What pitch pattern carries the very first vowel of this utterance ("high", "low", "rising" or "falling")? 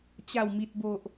low